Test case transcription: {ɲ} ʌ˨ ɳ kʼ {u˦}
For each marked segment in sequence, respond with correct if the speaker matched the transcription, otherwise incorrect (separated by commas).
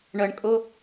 incorrect, incorrect